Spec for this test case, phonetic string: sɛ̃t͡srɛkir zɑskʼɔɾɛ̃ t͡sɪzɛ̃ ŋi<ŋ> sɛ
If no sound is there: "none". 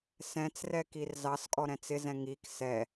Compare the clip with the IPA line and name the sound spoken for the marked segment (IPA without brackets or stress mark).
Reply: k